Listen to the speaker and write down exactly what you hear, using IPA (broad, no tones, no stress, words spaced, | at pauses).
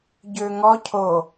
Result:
ɟøŋɔ cʰo